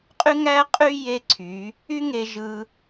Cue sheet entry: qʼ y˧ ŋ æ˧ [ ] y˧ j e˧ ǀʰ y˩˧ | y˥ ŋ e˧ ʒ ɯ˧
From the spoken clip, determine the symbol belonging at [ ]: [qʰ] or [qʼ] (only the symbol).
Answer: qʼ